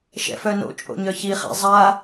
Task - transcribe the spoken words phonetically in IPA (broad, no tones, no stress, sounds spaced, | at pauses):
ʃ ɛ̰ f œ n o̰ t͡ʃʼ o̰ ɲ œ ç i χ ɛ̰ zˤ a